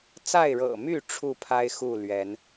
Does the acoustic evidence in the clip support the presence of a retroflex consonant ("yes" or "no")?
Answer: yes